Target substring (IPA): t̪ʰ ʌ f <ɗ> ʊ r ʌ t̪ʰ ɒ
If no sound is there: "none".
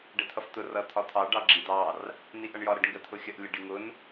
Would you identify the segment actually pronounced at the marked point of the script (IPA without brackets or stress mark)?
t̪